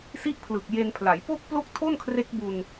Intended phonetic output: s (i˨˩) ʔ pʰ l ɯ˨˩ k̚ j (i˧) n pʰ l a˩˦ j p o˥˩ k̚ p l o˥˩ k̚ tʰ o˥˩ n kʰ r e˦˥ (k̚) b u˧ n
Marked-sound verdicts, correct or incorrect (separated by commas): incorrect, incorrect, correct